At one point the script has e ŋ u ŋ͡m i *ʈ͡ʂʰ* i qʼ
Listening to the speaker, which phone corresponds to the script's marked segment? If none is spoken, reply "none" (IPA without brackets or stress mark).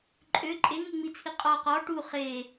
t͡sʰ